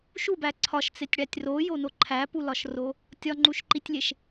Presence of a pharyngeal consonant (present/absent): absent